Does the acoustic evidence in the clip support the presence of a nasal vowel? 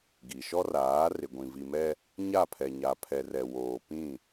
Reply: yes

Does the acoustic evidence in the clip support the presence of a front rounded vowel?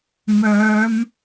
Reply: yes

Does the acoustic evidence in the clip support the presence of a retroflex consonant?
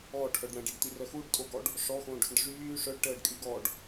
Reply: yes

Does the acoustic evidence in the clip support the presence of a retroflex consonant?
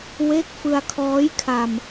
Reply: no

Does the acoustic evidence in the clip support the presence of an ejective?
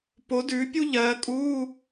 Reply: yes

